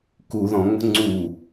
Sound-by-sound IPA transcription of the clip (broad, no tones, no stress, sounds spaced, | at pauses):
k u ð ɔ̃ ŋ͡m ə̤ ŋ͡ǀ u